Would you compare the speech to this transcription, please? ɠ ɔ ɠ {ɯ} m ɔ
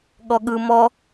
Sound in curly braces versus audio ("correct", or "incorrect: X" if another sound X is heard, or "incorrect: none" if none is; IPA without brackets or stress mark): correct